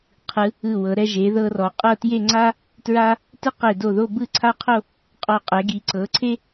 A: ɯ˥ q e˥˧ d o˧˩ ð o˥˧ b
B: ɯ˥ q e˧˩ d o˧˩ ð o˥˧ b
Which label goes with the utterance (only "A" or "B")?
B